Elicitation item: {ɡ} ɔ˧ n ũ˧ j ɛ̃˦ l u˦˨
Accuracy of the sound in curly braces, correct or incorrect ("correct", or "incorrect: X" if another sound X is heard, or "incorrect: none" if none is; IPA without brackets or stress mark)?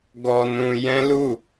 correct